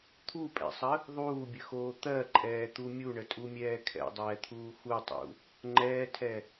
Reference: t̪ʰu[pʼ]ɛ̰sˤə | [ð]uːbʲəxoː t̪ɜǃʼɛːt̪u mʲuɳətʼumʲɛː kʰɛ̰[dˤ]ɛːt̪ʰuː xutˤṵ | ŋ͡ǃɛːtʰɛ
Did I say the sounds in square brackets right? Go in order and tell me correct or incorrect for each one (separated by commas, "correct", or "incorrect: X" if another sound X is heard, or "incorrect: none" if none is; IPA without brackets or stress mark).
correct, incorrect: ðˤ, correct